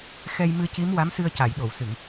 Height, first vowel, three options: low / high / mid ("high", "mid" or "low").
mid